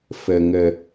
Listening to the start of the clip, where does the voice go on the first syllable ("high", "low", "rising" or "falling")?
low